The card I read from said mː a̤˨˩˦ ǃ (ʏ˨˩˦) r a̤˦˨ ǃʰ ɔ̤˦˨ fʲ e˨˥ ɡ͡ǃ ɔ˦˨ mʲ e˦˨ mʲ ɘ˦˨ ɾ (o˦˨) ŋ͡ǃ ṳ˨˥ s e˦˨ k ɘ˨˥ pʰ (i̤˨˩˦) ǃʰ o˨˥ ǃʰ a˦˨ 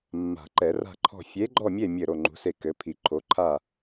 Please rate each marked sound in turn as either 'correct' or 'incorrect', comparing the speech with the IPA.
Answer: incorrect, correct, incorrect

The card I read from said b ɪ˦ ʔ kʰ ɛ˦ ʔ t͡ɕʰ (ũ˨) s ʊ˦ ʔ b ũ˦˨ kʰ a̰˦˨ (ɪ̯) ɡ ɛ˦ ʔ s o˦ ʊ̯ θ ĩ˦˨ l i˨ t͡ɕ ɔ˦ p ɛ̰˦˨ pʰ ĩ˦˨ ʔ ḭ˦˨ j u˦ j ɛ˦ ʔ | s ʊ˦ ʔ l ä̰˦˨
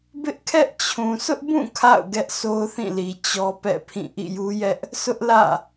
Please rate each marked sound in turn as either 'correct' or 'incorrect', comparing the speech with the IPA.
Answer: correct, incorrect

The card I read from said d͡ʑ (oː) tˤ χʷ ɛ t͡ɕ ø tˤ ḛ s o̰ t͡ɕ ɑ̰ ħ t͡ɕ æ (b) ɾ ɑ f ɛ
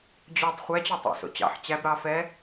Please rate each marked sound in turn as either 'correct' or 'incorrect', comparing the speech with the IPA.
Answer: incorrect, correct

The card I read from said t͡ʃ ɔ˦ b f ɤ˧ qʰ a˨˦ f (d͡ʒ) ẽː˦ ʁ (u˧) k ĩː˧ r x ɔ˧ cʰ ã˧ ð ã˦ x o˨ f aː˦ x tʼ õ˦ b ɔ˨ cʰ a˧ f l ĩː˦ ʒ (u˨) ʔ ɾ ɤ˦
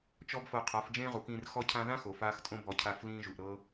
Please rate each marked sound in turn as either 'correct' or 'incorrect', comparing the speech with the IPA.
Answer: correct, incorrect, correct

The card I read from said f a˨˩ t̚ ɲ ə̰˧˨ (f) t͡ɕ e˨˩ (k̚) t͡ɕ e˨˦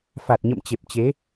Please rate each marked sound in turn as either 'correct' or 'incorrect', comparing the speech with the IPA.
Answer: incorrect, incorrect

